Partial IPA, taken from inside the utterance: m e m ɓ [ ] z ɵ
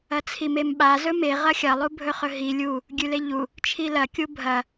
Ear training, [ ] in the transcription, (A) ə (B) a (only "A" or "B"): B